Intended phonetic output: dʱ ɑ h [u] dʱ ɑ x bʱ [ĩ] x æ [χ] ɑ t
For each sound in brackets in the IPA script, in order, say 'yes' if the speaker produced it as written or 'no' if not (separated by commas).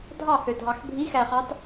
no, no, yes